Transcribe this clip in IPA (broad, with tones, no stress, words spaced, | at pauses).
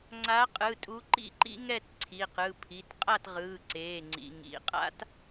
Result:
ŋ͡ǀa˨˦qʼɯ˩˧˩tʼu˨˦ ǃḭ˥˨ǃḭ˥ ŋɛ˥˨tǀʰi˩˧˩qɯ˩˧˩pʰi˩˧˩t qʼa˥˨tʁɯː˩˧˩ǀeː˩˧˩ŋ͡ǀḭ˩˧˩ ŋḭ˩˧˩ qʼa̰˥t